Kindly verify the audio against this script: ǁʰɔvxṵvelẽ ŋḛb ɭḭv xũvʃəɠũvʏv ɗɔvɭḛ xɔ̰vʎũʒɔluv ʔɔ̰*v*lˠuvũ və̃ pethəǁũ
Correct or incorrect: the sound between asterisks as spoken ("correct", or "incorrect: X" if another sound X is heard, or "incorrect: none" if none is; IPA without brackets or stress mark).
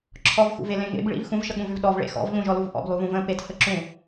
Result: incorrect: b